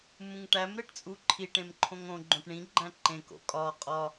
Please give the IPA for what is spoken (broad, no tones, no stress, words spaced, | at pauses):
mũŋʈæm ɾeʈt͡sʼuǃʰi ʈẽmǃʰõŋõ ɡ͡ǃõʈɳĩ ɡ͡ǃæ̃ǃẽ ko̰kʼɒ qʼɒ